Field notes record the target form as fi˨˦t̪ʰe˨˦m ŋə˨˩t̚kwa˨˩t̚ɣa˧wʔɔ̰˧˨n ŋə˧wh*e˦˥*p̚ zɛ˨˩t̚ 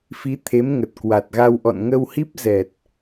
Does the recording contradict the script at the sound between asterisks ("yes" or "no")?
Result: yes